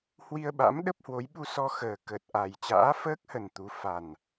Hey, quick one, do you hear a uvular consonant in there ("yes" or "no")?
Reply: no